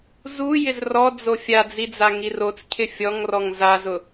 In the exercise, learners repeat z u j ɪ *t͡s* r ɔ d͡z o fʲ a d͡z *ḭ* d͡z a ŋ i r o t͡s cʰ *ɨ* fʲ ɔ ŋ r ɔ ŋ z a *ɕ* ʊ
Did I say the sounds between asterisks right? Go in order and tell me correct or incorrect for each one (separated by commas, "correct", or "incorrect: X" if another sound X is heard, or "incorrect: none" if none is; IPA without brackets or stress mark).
incorrect: z, incorrect: i, incorrect: ɪ, incorrect: z